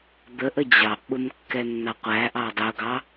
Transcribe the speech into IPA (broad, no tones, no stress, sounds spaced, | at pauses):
d̪ ə ʔ ə d͡ʑ ɑ ʔ ɓ ʊ m kː ɛ nː ɑ qʷ æ ʔ ɑ dˤ ʊ ɡ ɑ